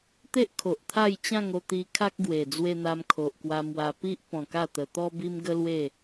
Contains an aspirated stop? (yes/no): yes